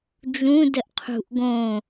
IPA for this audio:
d͡ʒ ũ d ə ʔ qʰ ṳ ʔ ɡ õ

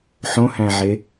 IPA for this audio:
ħ õ h æ̃ ʕ e

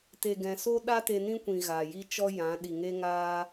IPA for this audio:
t e˨ ɡ ɛ̃˨ s o˦ ɗ a˦ t e˧ n ĩ˦ kʷ ĩ˨ ɣ a˨ j i˦ t͡ʃ ɔ˦ j ã˨˦ ɗ i˨ ŋ e˦ ŋ aː˦

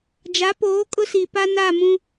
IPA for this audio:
d͡ʒ a˨˦ p oː˨˦ kʼ ʊ˦ s i˨ p a˦ n a˦˨ m ũ˦

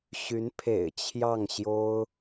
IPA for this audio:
ɕ y˧˥ n pʰ ḛ˨˩ ɪ̯ t͡ɕʰ j ɑ˥˩ ŋ ɕ j o˥ ʊ̯

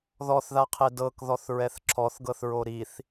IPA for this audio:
ð ɔ θ ð a qʰ e d ɤ k ð ɔ θ ɹ ɛ θ ǁʰ ɔ θ ɡ ɤ θ ɹ o ɾ i θ

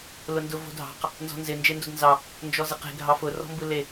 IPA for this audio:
l ʊ n d ʊ v o̤ dʱ ɑ̤ q | n z ɔ̤ n z ɪ n d͡ʒ e n d o d n z ɑ | n d͡ʒ ɔ z ɪ q e̤ ɡʱ ɑ f ʊ r ɔ̤ m b ɯ l e

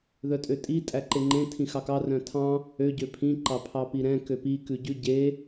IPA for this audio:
ð œ tʼ ø tʼ i tʼ æ ǃ e ŋ͡ǃ ẽ tʰ ĩ x ɑ k ɑ r œ̃ tʰ ɑ̃ | ø ɟ ø pʰ ĩ ǃ ɑ pʰ ɑ p i ɾ ɛ̃ k ø p i k ʉ ɟ ʉ ɟ e

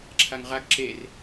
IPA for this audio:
ǁʰ a ŋ ʁ a ɡ ǁ e r

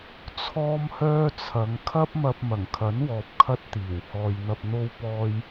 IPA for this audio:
t͡sʰ ɔː˥ m h œː˥ t͡sʰ ɐ˨˧ ŋ kʰ ɐ˥ p̚ m ɐ˧ p̚ m ɐ˨˩ ŋ kʰ ɐ˨˥ n w ɔː˨ p̚ kʰ ɐ˥ t̚ t̪ iː˨˩ w h ɔː˨ j n̪ ɐ˧ p̚ n̪ o˧ w p ɔː˧ j

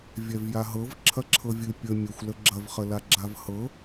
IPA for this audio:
vʲ ɛ v j a ɦ ɤ v ǁʰ ɐ ǁʰ ɤ vʲ ɨ pʲ ə mʲ ə xʷ l ə ɡ͡ǁ ɐ v χ ə l a ɡ͡ǁ a v h ɤ

